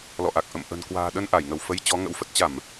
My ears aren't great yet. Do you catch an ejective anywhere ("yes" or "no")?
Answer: no